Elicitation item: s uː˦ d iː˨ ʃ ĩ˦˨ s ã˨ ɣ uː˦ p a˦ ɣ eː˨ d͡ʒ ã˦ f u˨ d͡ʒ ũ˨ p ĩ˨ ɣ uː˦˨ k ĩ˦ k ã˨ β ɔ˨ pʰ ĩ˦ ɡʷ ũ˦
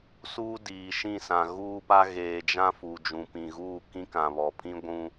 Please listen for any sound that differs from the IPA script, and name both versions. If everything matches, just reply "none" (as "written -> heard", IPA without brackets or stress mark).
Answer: none